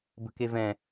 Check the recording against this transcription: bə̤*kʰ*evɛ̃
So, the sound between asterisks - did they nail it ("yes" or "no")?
no